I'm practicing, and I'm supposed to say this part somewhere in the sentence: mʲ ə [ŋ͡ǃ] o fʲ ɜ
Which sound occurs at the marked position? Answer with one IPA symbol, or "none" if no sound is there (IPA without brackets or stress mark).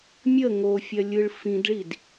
ŋ